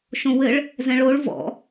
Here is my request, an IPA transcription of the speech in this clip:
ʃ õ w ɘ ɭ | z ɛ̃ ɭ o ɭ v ɔ̰

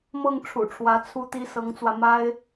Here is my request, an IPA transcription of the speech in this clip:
m ɤ˥˩ ŋ ʈ͡ʂʰ ṵ˨˩ ʈ͡ʂʰ w ä˧˥ t͡sʰ u˥ t̪ i˥ s ɤ˧˥ ŋ t͡s w ä˧ m a˥ ɪ̯

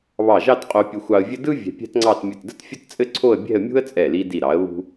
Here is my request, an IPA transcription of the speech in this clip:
β ɑ˧˩ ʒ ɑ˥˧ t qʼ o˧ pʲ o˧ xʷ ɑ˧ ə̯ vʲ ɘ˥ d ɯ˥ vʲ ɛ̤˧ pʲ ɛ̤˥ t ŋ͡ǀ ɑ˥˧ t mʲ ə˧˩ t d ə˥ t fʲ ə˥ t t͡sʼ ɘ˥ ǀʰ o˥˧ ə̯ bʲ ɛ̤˥˧ ə̯ mʲ ṳ˥ ə̯ t͡sʼ ɛ˧˩ l i˧ d i˧˩ ɾ ɑ˩˧ ə̯ β ṳ˧

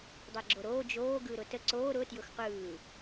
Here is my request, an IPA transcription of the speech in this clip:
dˤ ɛ ɡ͡ǁ o ɾ oː d͡ʒ oː ɡ ɯː ɾ ʊ t ə ǀ oː ɾ ʊ t j ʊ x q ɯː

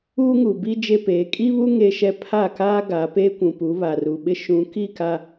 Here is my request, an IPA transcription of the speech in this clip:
uː˦ ŋ uː˨ b i˦ d͡ʒ e˦ p eː˨˦ kʼ i˦ β u˦ ŋ e˦ ʃ ɛ˦ pʰ a˦˨ k aː˦ ɡ a˨˦ p eː˦ kʷ ũ˨ p u˨˦ β a˨ r u˨ ɓ ɪ˦ ʃ ũ˨˦ k i˦˨ k a˨

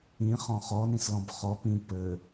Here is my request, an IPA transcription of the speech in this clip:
ĩ χ ɔ̃ χ ɔ n ĩ s l ɔ̃ b χ ɔ p ĩ p ɘ

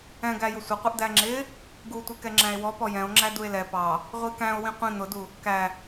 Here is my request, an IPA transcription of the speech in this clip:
ɛ̃ ɡ æ j ʊ sʷ ʌ qʷ ɛ ʔ d æ ŋ͡ǁ ɪ | ɡ u tʷ i k ɛ ŋ͡ǁ æ̃ e̯ w ɔ p ɔ j ɛ̃ o̯ ŋ͡ǁ æ d u e̯ l ɛ p ɑ | ʁʷ i k æ̃ o̯ w ĩ qʷ ĩ n̪ ʊ d u | k æ

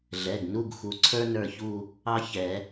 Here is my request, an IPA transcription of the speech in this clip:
ɮ ɛ˩˧˩ ɡ n u˦˨ ɡ x u˩˥ ǀʰ ə˞˥ n ə˞˦˨ ç u˦˨ | ɑ˥ ç ɛ˨˩˦

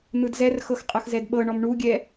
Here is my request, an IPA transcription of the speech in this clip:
n̪ ɯ d z ɛ r x ɤ x qʼ ɤ x z ɛ d ɓ ɤ ɳ ɔ m ɳ u ɡʲ ɛ

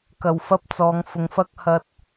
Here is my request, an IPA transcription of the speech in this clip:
k ɐ˨ w f ɐ˥ p̚ t͡s ɔː˨˧ ŋ f ʊ˨˧ ŋ f ɐ˥ k̚ h ɐ˧ t̚

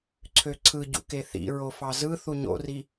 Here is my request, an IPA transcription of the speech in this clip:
ǀʰ ø ǀʰ ɯ ɟ ṵ k e θ ḭ ɹ o f ɑ z ɯ θ u ɲ o̰ r i

